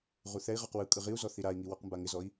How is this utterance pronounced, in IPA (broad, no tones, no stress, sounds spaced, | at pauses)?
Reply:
ʁ u θ ɛ i̯ ʁ ɔ q w ɯ kʼ ɯ ʁ i u̯ z ɔ θ i ɾ a i̯ ŋ i w ɔ q m b a ŋ ɪ z ɔ i̯